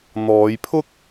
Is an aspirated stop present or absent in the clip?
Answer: present